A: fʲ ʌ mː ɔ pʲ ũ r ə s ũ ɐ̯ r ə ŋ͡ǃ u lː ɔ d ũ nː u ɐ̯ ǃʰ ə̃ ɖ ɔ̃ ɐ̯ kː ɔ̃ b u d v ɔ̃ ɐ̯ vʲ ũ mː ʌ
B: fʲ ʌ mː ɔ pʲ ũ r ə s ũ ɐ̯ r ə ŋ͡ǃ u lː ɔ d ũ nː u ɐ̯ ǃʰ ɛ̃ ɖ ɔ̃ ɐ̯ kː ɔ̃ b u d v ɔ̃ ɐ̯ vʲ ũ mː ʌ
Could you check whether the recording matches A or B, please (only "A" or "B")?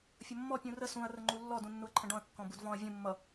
A